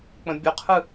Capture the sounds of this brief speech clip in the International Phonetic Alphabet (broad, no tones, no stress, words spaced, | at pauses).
k͡pə̃bʲʊqʰɯ